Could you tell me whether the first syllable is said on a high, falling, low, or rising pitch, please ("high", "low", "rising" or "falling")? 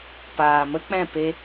low